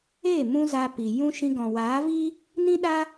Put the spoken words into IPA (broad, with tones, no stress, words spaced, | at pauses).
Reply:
eː˦˨ mũ˦za˧ pi˨ jũ˦ ʃĩ˧ɡɔ̃˨ waː˨˦vi˦ | nĩ˦ɗa˦